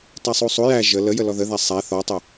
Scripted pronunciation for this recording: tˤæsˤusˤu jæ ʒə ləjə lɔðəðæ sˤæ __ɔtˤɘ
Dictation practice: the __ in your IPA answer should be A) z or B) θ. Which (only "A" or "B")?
B